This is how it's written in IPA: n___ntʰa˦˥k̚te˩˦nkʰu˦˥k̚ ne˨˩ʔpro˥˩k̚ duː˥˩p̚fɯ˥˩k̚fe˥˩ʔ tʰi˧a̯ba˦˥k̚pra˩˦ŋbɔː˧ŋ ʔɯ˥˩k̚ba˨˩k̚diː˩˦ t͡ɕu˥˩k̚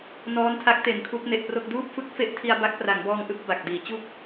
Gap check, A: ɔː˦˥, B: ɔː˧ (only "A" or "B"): A